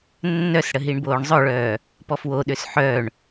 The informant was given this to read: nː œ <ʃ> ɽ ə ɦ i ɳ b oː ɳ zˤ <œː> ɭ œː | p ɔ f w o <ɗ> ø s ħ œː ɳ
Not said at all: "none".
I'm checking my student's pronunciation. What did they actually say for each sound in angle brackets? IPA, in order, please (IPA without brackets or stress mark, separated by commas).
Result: s, œ, ɗ